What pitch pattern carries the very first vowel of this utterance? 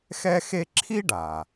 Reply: high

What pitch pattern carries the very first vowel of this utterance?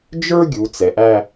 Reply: high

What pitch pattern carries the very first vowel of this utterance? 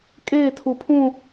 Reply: falling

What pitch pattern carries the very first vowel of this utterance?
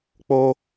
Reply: high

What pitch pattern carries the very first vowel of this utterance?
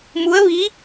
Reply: rising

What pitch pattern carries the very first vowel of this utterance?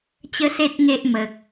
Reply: high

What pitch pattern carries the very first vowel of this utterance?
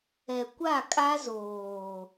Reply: low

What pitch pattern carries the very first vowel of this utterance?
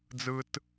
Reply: high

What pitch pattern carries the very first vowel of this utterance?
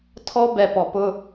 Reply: high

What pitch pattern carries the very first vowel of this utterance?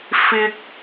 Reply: high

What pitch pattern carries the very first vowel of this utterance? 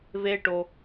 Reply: high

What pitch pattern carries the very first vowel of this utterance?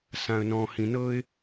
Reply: low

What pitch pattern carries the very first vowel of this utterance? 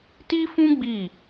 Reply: high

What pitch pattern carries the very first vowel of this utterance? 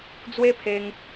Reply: high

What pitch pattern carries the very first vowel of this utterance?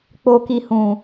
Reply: low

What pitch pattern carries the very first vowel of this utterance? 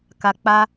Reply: low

